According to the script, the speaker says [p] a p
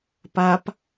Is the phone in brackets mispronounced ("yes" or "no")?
no